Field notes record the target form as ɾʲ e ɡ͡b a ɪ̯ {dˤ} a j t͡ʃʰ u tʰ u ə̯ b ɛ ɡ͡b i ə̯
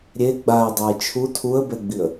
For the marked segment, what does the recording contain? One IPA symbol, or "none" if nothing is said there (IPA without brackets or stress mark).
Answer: dˤ